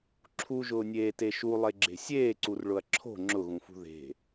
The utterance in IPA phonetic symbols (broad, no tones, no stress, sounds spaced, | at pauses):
ǁʰ u ʒ ʊː nʲ eː t e ʃ u lˠ e ɡ͡ǁ e̤ sʲ eː ǀ u r ɭ ʊ ɐ̯ ǁʰ o̤ ŋ͡ǁ ʊ ɣ ũ f ṳ ð e̤